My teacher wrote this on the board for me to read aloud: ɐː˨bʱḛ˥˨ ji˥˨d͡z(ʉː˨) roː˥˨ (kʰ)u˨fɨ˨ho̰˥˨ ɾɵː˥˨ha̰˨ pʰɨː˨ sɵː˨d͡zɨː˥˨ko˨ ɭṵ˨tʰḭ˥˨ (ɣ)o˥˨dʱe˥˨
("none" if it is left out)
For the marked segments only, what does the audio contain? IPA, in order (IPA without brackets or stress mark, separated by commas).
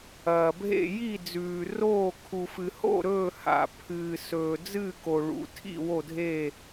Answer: ʉː˨, kʰ, w